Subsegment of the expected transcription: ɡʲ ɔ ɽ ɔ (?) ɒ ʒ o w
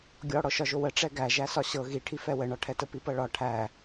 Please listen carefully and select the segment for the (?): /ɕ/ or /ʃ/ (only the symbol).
ʃ